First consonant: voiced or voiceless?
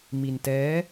voiced